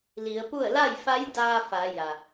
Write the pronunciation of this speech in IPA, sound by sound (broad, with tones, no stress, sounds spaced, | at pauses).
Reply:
l i˩˧ ə̯ p u˥˨ ə̯ l a˥˨ j f a˧˥ j d aː˧ f a˩˧ j a˩